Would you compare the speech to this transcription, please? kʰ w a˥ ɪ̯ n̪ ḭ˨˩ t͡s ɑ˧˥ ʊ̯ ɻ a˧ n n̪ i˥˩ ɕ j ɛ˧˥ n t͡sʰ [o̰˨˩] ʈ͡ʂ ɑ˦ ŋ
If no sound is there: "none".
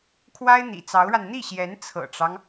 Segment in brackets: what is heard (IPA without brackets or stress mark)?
ɤ̰˨˩